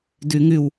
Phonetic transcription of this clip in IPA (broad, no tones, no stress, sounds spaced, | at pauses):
d ʉ ŋ ʉ w